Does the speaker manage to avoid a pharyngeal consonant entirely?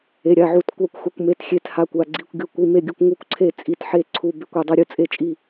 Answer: no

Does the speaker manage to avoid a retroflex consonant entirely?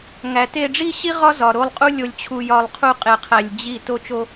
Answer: no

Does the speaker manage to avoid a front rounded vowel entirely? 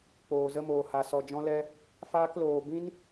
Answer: yes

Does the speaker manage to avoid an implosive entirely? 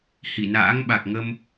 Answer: no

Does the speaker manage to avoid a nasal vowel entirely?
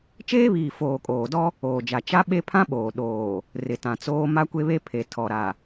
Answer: no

